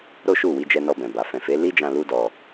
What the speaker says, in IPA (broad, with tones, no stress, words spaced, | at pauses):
ɾo˦ʃu˦˨wi˧ d͡ʒɛ˧nɔ˧bɛ̃˨ba˨ fɛ̃˨fe˨˦ li˦d͡ʒã˧ lu˦dɔ˧